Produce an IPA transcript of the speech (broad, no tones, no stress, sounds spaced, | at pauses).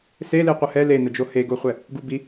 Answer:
s e l i qʷ ə h ɛ l e n ə d͡ʒ o h e ɡ o χʷ ɛ | ɡ u b i